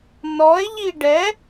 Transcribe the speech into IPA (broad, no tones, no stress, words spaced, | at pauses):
nɔe̯ʎi ɖɛ